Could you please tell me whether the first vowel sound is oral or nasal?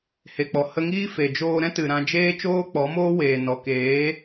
oral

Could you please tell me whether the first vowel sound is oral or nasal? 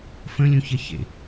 nasal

